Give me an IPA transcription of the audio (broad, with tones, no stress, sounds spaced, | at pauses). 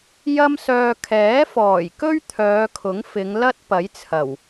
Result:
j ɐ˥ m s œː˧ kʰ ɛː˨˥ f ɔː˨˩ j k ɵ˥ ɥ t̪ʰ œː˨˧ kʰ ʊ˨˥ ŋ f ɪ˨˧ ŋ l ɐ˥ t̚ p ɐ˨˥ j t͡sʰ ɐ˨˩ w